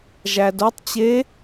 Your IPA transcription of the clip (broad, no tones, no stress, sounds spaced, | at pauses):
ʒ æ d o tˤ t͡ɕ e